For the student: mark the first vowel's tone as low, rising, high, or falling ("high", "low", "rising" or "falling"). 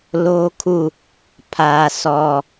high